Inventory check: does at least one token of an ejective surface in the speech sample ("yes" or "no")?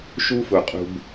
yes